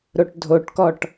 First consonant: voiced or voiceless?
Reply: voiced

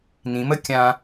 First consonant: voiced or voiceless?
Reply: voiced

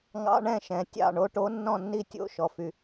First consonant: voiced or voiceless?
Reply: voiced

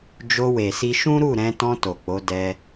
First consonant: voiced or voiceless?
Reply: voiced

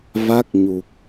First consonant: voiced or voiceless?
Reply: voiced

